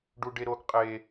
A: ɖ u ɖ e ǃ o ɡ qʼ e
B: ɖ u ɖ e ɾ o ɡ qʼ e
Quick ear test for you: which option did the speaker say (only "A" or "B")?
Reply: B